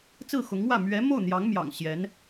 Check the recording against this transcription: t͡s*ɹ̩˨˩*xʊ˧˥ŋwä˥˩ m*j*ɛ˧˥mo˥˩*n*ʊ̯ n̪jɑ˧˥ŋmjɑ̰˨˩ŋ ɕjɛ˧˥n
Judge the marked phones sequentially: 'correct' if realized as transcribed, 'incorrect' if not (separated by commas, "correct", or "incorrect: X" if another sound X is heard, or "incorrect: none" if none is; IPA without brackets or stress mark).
incorrect: ɹ̩˥˩, incorrect: ɥ, incorrect: none